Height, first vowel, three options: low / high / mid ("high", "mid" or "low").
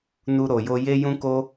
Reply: high